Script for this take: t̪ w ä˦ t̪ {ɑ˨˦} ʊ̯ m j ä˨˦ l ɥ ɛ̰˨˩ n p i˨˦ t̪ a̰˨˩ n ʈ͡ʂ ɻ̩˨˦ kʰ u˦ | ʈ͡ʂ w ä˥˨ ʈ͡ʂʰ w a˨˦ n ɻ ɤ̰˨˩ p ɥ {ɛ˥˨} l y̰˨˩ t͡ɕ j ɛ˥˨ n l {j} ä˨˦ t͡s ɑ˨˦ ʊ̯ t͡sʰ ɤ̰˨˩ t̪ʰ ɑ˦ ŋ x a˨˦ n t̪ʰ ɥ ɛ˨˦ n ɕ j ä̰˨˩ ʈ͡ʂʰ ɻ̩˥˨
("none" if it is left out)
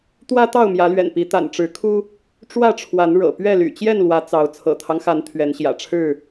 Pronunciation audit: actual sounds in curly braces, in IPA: ɑ˥˨, ɛ˥˨, w

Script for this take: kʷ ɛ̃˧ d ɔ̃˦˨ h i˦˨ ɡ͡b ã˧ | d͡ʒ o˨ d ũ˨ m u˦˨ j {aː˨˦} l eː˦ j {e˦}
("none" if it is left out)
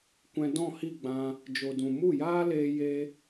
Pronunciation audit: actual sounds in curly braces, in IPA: aː˦, e˦

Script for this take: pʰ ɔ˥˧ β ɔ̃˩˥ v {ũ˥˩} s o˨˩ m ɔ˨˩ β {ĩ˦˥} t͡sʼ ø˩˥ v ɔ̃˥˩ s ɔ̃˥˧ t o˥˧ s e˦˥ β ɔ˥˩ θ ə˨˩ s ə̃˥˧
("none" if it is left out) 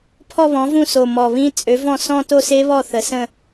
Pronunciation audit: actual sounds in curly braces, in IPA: ũ˥˩, ĩ˦˥

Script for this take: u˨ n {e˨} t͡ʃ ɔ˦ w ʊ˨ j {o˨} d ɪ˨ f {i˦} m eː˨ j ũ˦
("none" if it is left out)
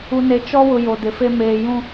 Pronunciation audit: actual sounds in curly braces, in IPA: e˨, o˨, e˦

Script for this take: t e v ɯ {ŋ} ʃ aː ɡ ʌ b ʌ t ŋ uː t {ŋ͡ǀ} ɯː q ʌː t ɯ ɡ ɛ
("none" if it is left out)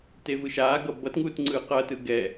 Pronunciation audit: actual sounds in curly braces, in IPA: none, ŋ͡ǀ

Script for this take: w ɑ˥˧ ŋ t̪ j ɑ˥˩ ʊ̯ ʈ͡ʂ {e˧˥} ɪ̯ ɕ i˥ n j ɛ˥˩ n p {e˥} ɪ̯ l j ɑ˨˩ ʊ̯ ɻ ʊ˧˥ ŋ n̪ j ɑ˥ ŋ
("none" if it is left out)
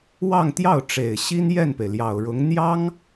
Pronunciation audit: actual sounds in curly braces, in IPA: e˨˩, e˩

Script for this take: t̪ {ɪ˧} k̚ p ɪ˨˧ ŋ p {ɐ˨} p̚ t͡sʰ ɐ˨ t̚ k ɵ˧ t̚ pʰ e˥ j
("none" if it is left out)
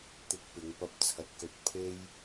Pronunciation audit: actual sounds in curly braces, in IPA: ɪ˧, ɐ˧

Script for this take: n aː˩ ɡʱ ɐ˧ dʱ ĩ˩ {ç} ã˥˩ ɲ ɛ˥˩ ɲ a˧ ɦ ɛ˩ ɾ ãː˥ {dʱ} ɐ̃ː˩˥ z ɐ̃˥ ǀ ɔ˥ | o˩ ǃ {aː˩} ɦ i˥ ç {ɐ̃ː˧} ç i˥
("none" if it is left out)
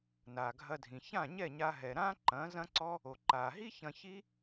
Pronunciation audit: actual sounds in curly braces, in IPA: ç, ǃ, aː˩, ɐ̃˧

